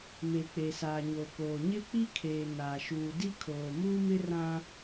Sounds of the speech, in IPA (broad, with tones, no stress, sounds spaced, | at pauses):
m e˨ k͡p e˨ s aː˨ ɲ o˨ k oː˨ ɲ ɪ˦ k͡p i˦ kʰ eː˨ n aː˨ ʃ uː˨ d i˦ kʰ oː˨ m uː˦ m ɪ˦ r ã˦